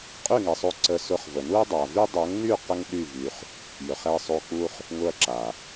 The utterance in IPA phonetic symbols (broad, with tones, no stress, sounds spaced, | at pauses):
qʼ y˦˨ ŋ ɛ˨ sˤ o˧ ǀ ə˧ s ʊ˧ χ v ə˨ n u˦ ɐ̯ dˤ a˨ v y˦ dˤ o˨˦ ŋ n y˦˨ q ə˦ ŋ ɗ y˦˨ v y˧ χ | j ɵ˨ χ ɛ˧ sˤ o˧ k͡p u˦ χ | ŋ ʊ˦ ɐ̯ ǁ a˨